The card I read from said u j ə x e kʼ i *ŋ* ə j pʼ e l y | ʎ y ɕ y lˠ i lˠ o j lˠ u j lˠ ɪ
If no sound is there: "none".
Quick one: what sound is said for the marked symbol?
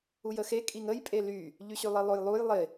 ŋ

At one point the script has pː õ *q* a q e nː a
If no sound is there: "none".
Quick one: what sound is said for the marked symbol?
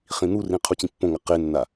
ŋ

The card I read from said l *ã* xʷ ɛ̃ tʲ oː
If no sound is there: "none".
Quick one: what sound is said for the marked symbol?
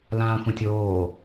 ãː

